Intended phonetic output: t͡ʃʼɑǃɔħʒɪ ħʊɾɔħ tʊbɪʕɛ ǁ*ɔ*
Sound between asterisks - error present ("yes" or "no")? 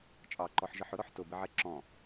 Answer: yes